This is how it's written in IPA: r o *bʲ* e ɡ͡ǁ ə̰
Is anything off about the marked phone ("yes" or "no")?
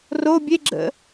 no